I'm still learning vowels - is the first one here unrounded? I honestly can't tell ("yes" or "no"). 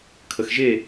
yes